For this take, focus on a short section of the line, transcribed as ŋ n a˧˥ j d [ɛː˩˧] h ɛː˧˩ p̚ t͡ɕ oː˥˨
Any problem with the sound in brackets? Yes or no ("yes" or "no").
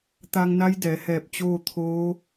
no